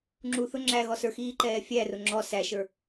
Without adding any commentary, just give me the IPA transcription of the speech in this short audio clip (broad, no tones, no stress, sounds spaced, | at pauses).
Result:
ŋ͡ǁ u θ ʊ ŋ͡ǁ æ ɣ ɔ s ə˞ x iː ǃ ɛː fʲ æ r ʊ ŋ͡ǁ ɔ s æ ʃ ə˞